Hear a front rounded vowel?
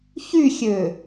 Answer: yes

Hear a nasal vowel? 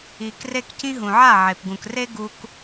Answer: yes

